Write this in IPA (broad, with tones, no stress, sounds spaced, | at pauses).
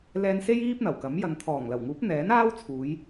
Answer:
l ɛː˧ n s e˥ j iː˥ p̚ n̪ ɐ˨˩ w k ɐ˨˥ m j ɐ˨ n t̪ʰ ɔː˨˩ ŋ l ɐ˨˩ w ŋ uː˨˥ p̚ n̪ ɛː˨˥ n aː˥ w t͡sʰ uː˨˧ j